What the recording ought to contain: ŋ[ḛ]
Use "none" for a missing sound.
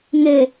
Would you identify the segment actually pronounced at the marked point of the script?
e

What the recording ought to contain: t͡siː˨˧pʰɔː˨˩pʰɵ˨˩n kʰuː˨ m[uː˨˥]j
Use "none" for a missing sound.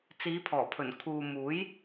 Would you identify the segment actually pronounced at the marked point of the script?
uː˨˥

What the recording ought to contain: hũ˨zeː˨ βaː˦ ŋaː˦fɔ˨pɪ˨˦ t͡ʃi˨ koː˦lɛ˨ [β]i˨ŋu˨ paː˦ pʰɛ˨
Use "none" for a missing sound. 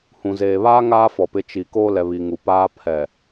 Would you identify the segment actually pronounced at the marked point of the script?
β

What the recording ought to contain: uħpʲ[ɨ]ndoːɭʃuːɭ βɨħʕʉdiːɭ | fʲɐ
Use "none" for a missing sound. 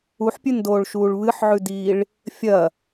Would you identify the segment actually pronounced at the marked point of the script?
ʉ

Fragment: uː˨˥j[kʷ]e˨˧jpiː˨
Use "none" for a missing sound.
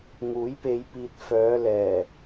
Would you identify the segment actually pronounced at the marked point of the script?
p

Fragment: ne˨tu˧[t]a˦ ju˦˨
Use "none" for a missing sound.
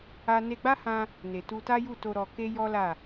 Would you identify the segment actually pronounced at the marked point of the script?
t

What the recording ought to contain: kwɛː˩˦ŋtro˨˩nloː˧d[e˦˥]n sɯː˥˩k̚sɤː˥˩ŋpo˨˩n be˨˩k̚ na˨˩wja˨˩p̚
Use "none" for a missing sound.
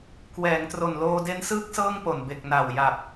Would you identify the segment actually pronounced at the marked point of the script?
e˦˥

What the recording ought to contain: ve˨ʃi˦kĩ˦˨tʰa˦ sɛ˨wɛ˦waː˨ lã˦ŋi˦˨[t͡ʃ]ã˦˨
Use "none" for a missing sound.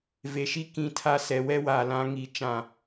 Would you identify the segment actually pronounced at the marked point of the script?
t͡ʃ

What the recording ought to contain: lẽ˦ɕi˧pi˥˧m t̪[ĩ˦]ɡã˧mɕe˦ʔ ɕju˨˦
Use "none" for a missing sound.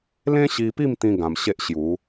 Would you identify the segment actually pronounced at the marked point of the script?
ĩ˦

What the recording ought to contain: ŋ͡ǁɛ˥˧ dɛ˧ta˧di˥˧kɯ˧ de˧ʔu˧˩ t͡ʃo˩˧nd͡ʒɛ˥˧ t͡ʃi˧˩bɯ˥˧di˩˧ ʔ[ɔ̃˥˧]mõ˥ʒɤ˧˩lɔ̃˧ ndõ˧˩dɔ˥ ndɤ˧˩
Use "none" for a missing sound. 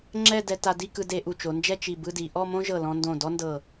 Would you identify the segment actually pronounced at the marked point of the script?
ɔ˥˧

